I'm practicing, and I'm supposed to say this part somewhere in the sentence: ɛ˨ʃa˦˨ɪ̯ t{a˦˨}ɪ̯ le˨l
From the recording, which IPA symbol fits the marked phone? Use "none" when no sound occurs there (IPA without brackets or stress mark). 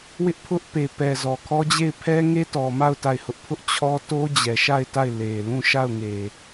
a˦˨